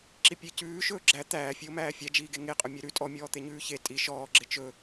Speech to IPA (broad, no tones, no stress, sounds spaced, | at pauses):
ǁ i pʲ e c ʉː ʃ ɵː ɡ͡ǁ æ t̪ æː fʲ ʉ o̯ m æː fʲ æ d͡ʒ iː ɡ e ŋ e qʼ ɵ mʲ e ɾ ʉ tʼ ɔ mʲ ɔː t̪ e ɲ ʉː ç e tʼ i ʃ ɔː ɡ͡ǁ e t͡ʃ ɵ